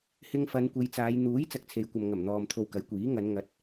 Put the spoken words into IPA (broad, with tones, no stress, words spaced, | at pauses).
hɪ˧ŋfɐ˨˧n kʷe˨˧jt͡saː˨˧j n̪uː˨˥j t͡sɐ˧k̚t͡sʰe˨˧jkʷɐ˨m ŋɐ˨˩mn̪ɔː˨m t̪ʰo˧wkɐ˨˥jkʷiː˨˥ ŋɐ˨˧n ŋɐ˨˥t̚